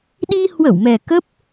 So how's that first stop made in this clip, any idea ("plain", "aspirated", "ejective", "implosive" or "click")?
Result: implosive